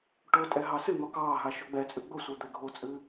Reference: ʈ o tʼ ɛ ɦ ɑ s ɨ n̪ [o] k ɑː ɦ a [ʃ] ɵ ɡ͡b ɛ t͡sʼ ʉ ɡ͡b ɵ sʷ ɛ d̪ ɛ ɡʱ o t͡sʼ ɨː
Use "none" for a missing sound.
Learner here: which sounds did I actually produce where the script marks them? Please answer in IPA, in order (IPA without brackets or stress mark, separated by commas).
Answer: ɔ, ʃ